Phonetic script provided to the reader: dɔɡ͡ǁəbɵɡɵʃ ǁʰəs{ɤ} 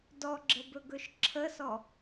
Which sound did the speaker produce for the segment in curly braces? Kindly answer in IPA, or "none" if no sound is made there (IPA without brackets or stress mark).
ɔ